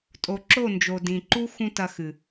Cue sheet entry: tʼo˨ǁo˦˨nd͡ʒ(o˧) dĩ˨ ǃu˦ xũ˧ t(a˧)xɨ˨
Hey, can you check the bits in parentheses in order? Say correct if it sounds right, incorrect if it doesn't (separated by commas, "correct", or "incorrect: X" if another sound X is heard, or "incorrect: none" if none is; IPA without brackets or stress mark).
incorrect: o˨, incorrect: ɐ˧